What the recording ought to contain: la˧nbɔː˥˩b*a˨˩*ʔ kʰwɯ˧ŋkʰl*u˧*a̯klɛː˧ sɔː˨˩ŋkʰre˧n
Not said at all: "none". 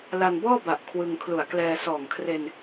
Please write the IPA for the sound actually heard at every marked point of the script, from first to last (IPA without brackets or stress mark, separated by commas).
a˨˩, u˨˩